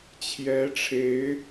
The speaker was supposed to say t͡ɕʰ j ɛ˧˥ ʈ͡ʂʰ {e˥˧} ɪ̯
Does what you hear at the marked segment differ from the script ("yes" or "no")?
yes